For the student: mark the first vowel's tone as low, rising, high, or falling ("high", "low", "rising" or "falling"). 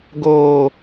high